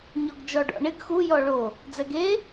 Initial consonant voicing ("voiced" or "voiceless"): voiced